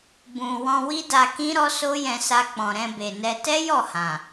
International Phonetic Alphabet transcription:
bũ˨ wɔ̃˧wi˦da˧ kĩ˦ɾɔ˦ so˦jɛ̃˧sa˧ k͡pɔ̃˨ɾɛ̃˧be˨nɛ˧ tɛ˦jɔ˦˨hã˨

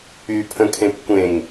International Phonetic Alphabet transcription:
ypʰə̃kʰẽp kʷẽŋ

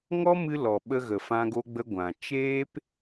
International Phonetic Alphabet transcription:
ŋɔ˦mɨ˧ lɔ˨ɓə˧ɣə˨ fã˦ɡo˦ɡ͡bə˦ ɡʷã˨ t͡ʃeː˦p

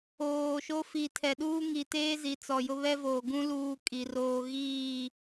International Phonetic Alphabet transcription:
oː˨ʃo˦ fi˨tʰɛ˨ɗuː˦ŋi˨ teː˦ zi˨t͡sɔ˨jʊ˦ βɛ˦voː˨ɡũ˦ luː˦kʼi˨roː˦ ɣiː˦˨

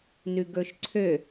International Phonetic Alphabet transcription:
nʉɡɵʃǀʰø

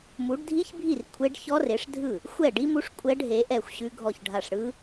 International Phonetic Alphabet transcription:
mu˨˥ɖdʱi˦˥çbʱi˥˩r kʷʰe˦˥ɖ çɔ˦˥re˨˥ʂdʱɯ˥˩ | xʷɛ˥˩ɖi˦˥mu˦˥ʂ kʷʼɛ˦˥ɖɦe˨˥ʔɛ˥˩xʷ ɕʉ˦˥ɡʱɔ˥˩çɖʱa˥˩ʂ ɽɯ˦˥

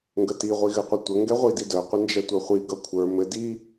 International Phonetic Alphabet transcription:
ŋɡəti ʁʷiɣɘqʷətʷə ŋɡɛʁʷididœ qʷɘnd͡ʒɛtʷœχʷi ɡʌkʷʰə˞ mɘ di

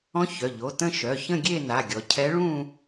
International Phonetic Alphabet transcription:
ɔ̃˧˥ çœ˩˧˩ʎo˩˧˩ tə̃˥˧ʃœ˩˧˩çə̃˥˧ ɡʲe˥˧na˩˧˩ɡʲɔ˩˧ cʰɛ˧˥ɭũ˥˧

